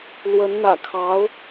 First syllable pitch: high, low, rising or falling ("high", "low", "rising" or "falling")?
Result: rising